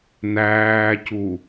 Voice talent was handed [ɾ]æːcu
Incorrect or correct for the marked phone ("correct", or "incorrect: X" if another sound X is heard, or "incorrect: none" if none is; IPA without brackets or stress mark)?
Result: incorrect: n